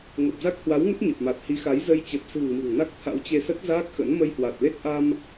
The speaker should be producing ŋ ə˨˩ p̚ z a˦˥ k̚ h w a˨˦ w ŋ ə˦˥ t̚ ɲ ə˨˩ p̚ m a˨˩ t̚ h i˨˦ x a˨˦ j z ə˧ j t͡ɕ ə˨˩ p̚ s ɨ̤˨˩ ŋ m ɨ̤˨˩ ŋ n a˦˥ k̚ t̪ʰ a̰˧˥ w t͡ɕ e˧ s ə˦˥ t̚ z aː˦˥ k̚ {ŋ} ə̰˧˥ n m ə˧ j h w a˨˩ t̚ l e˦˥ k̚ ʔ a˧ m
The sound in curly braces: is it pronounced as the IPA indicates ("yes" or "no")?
no